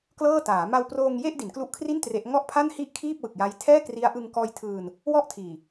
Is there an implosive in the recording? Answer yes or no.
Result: no